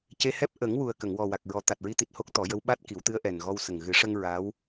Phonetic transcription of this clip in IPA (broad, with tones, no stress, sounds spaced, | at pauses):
c e˧ h ɛ˦˥ p̚ ʔ ə˨˩˦ ŋ w u˨˩ ə̯ k ə˨˩˨ ŋ w ɔ˨˩ w a˨˩ k̚ ɹ ɔ˨˩˦ t̪ a˨˩ t̚ ɹ i˧˥ t̪ i˨˩ t̚ h o˦˥ k̚ t̪ ɔ˨˩˦ j ə˧˥ w ɓ a˦˥ t̚ k i˨˩˦ w t̪ ɨ˧˥ ə̯ ʔ ɛ˨˩ n ɣ ɔ˧ w s ə˨˩ ŋ ɣ ɨ˨˩˦ ʂ ə˧ ŋ ɹ a˧˥ w